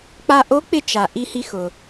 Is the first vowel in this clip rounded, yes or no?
no